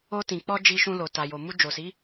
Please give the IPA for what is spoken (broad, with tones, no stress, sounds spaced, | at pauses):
o˧ t ĩ˨ k͡p ɔ˧ d͡ʒ i˧ ʃ ũ˧ l o˨ t a˨ j o˨ m u˧ d͡ʒ o˨ s i˨˦